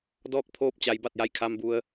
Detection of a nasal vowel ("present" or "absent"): absent